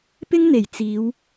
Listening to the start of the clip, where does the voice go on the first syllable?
high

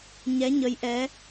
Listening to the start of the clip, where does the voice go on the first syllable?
rising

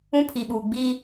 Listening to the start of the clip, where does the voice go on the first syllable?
high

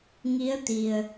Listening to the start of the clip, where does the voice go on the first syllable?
rising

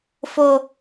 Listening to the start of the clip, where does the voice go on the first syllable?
low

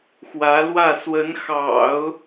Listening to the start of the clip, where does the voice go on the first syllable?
rising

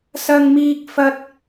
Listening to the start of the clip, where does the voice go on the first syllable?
high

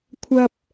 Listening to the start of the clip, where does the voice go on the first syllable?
low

